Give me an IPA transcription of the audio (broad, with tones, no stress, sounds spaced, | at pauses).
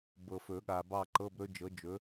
b ɤ˨ f ɵ˨˩˦ ɠ a˨ b ɑ˦˨ ǃ ɤ˧˥˧ b ɾ ɵ˦˥ d͡ʒ ɤ˨˥ d͡ʒ ɵ˨˥